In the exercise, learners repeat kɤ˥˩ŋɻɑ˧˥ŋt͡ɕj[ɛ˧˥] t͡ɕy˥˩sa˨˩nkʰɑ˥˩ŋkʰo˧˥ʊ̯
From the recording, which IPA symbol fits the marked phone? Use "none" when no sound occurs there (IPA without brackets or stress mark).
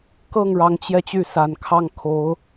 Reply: ɛ˧